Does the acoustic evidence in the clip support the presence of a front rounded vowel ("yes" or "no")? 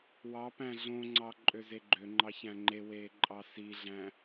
yes